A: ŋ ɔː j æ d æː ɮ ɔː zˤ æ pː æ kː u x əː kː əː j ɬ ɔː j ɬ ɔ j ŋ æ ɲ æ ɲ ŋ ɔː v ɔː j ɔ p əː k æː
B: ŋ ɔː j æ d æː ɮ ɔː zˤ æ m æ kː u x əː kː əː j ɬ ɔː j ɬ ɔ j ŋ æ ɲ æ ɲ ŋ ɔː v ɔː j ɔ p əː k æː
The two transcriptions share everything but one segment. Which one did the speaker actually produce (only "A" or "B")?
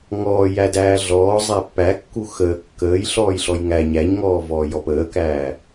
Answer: A